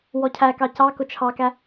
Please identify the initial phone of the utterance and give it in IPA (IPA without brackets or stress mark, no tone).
w